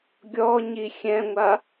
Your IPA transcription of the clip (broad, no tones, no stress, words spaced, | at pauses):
ɡʲɔɲi xʲɛ̃ŋʷa